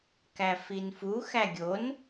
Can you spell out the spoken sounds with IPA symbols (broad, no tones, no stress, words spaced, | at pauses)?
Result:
kæfinfu xæɡʲon